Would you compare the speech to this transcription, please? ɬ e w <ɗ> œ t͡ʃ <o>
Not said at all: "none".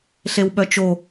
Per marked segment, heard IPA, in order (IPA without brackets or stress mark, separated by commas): ɓ, o